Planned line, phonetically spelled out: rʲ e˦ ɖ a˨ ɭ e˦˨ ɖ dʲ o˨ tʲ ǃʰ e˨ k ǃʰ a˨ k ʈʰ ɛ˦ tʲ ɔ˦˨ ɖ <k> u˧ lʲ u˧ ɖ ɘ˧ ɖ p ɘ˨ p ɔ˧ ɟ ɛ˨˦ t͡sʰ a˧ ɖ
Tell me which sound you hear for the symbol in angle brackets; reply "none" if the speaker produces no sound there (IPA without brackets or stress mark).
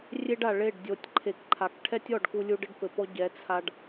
k